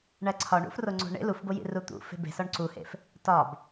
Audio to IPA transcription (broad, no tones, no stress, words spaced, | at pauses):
ɳæǀʰɒɳṵf roŋ͡ǀo̤ɳḛ lufbojḭ rut̪ṵfe̤ be̤sɒɳ ǀuhḛf | tɒb